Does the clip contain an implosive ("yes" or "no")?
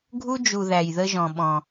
yes